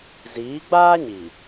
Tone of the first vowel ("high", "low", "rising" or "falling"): rising